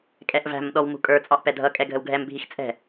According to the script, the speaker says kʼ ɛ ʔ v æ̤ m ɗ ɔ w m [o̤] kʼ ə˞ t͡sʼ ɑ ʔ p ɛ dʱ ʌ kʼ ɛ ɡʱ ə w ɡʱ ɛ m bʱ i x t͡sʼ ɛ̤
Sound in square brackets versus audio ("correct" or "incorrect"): incorrect